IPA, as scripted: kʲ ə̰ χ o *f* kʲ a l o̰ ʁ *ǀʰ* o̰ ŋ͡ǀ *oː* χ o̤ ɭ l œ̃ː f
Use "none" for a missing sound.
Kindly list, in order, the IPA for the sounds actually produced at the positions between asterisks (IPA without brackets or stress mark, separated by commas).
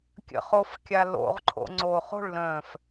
f, ǃʰ, oː